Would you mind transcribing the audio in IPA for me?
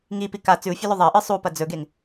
ŋipi ka t͡sʉu̯fʲɵlɵ ðˤɐʔɨ sˤupɐ d͡zɵɡeŋ

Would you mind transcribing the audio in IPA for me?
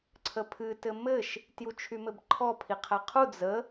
ǀʰəpʰɨ tɘmɘʃ | tjut͡ʃʰymɘbǃʰɔ pʰiqʰæqʰu d͡zə

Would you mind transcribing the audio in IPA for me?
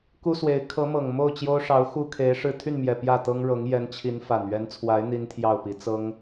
ku˥swe˧˥ɪ̯ kʰɤ˧˥ mɤ˨˩ŋ mo˥˩ʊ̯ t͡ɕjo˥ʊ̯ʂɑ˧˥ʊ̯xu˥kʰe˧˥ɪ̯ ʂɻ̩˥˧ t̪ʰy˥˩nmjɛ˨˩ pjä˥˩t̪ɤ˥ŋɻɤ˧˥ŋ jɛ˧˥nt͡ɕʰi˧˥n fa˨˩nɥɛ˧˥nt͡sʰwa˧˥ɪ̯ n̪i˥nt̪ʰjɑ˥˩ʊ̯pi˧˥ t͡sɤ˥ŋ

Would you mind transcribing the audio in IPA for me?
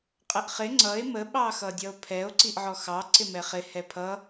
qʼəʔχɪ ŋ͡ǀʌe̯ mə ɓɑxʌdʲʌo̯pʰɛo̯ ǀiʔʕɔxɑ ǀɪmɛχɪ hɛpʰʌ

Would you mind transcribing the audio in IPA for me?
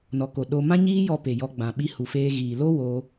nɔ˨ko˨ ɗo˧ mã˦ɲiː˦jɔ˧ pe˨jɔ˧ɡ͡bã˨ ɓi˧hu˨feː˧ ɣiː˨lo˦ wo˧

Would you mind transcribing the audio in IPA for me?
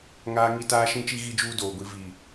ŋaː˦ ŋi˦taː˦ʃĩ˦t͡ʃi˦ ɣi˦d͡ʒuː˦doː˨ɡʷi˨˦ vi˨

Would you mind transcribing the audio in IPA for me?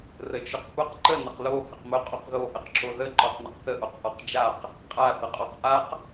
rət͡ʃʊqpʊq ǃə nəqlo həqmʊ qʼoqðo ʔəqǁoðə ǃɔqnəqθə ʔoqʔɔqd͡ʒaq | qʼa θəqʼɔqʔaq

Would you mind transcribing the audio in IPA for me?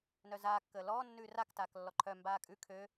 nœzaː kːəːlɔː nːʉːrak taːklːɔǃʰœ mbaːkʼʉ kʰø

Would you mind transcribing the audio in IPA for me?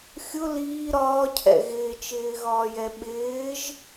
xʲʊ liː ɾɒːcʰɛ̰ ɣɪːt͡ʃɪːɣɒːjɛ ɓɪːʒ

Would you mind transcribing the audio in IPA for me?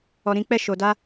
ɔ˧ɾĩ˦ k͡pɛ˦˨ʃo˨ da˧

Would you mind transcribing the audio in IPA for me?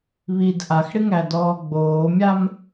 βid ʔaxɽɪŋædɔː ɡ͡boːmʲam

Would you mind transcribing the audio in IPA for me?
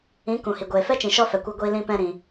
ĩ˨˦ kũ˨hi˨ ɡʷeː˨fɛ˦t͡ʃĩ˨ ʃɔ˦fɛ˨kʷɛ˧ɡʷiː˧ lĩ˧pɛ̃˧ ɾĩ˨

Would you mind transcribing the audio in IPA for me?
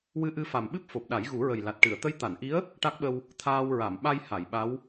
wɨ˧ʔɨ˧fa˨˩mɓɨ˦˥p̚ fo˨˩p̚ɗa˨˩˦jɣu˨˩˦ɹə˨˩j la˨˩t̚ʈɨ˨˩˨ə̯ t̪ə˧˥jt̪a˨˩˨nʔi˧˥ə̯ | ʈa˦˥k̚ɓə˧w | t̪ʰaː˧wɹa˨˩˨m ɓa˧j ha˨˩˨jɓa˧˥w

